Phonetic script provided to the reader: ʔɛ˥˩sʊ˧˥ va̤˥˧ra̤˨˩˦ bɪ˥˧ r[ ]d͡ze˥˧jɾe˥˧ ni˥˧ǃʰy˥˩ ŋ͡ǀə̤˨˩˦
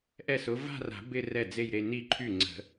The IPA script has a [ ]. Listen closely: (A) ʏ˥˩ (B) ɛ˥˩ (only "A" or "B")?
B